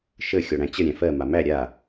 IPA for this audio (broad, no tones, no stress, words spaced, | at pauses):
ʃə xʲɔɽæ̃t͡ɕə ɾʲæ̃fɜ mamæ ɾʲa